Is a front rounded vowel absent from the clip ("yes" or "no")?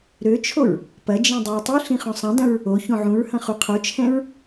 no